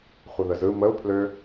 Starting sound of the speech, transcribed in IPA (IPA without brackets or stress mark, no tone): χʷ